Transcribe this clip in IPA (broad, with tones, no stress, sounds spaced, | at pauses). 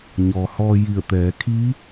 ɲ ɔː˩ h ɔː˧ j i˧˩ ə̯ t̪ ɛː˩˧ kʰ iː˧˥